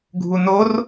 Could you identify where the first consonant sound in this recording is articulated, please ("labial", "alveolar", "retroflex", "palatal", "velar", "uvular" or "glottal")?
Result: velar